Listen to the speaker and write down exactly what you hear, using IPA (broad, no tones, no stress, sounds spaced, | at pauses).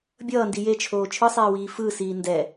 bʲ ʌː n d i j e t͡ʃʰ oː t͡ʃʰ ɯ sˤ eː w iː f ɯ s iː n d ɛ